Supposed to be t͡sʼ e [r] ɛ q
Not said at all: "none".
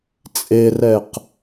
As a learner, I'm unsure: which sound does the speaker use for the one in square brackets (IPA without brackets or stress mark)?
r